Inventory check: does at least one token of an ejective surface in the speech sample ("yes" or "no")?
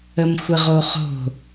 no